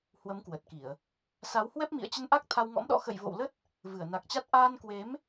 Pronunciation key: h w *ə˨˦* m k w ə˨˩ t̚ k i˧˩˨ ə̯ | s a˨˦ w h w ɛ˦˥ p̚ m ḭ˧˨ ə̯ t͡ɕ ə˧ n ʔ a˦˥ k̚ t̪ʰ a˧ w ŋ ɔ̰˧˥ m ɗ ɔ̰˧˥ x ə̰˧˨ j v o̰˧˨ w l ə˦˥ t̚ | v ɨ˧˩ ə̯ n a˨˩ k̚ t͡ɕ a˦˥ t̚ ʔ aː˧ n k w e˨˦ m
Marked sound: correct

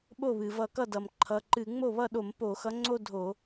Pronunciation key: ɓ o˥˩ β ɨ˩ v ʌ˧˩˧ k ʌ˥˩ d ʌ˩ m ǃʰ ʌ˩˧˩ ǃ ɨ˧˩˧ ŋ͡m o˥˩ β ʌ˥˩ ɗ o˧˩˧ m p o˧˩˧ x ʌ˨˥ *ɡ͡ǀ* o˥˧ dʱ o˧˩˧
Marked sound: incorrect: ŋ͡ǀ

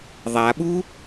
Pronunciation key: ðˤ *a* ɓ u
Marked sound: correct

